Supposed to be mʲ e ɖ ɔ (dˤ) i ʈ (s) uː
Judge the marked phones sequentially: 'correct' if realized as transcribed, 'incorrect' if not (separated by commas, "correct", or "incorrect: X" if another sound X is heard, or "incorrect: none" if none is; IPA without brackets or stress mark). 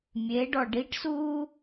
incorrect: ɖ, correct